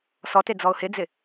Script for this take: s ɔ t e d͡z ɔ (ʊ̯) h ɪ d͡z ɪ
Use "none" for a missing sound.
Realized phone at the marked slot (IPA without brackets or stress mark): ʊ̯